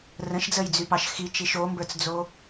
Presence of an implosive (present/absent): absent